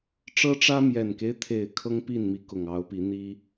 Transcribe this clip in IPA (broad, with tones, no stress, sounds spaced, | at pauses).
ʈ͡ʂ ɤ˦ ʈ͡ʂ ä˦ m j ɛ˨˩ n k e˦ ɪ̯ t̪ʰ e˨˩ ɪ̯ kʰ ɤ˦ ŋ p i˥˨ n m i˨˦ k ʊ˨˩ ŋ ɑ˨˦ ʊ̯ p i˨˦ n̪ i˦